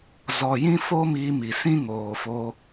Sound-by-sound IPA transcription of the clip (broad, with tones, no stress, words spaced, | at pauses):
zɔ˨jĩ˦ fo˦miː˧mi˨sĩ˦ ŋoː˨fo˧